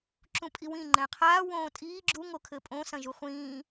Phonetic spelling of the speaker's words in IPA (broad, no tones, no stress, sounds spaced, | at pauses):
ǁ ũ pʼ i w ĩ ŋ͡ǃ ɛ̃ qʰ aː w õː tʼ iː ɡ͡ǁ u ŋ o kʰ ɘ pʼ õ s ɐ̃ ʒ u χʷ ĩː